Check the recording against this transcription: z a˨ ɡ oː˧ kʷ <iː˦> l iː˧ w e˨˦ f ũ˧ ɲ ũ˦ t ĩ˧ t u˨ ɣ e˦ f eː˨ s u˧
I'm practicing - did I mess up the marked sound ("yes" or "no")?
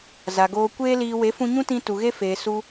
yes